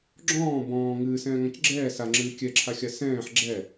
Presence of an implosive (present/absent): absent